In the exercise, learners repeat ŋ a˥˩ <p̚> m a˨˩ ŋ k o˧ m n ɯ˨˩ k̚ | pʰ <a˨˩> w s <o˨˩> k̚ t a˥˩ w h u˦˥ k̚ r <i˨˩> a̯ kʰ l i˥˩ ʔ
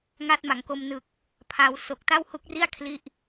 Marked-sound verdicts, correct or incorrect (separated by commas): incorrect, incorrect, correct, incorrect